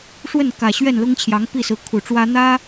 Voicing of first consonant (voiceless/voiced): voiceless